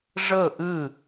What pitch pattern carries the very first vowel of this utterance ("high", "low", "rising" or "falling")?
falling